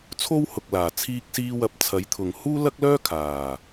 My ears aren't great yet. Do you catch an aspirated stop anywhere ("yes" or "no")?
yes